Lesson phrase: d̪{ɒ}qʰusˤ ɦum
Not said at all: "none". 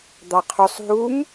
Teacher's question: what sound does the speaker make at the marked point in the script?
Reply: ɑ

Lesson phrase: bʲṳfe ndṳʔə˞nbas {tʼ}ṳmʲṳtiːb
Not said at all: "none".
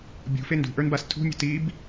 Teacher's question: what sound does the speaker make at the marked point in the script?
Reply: tʰ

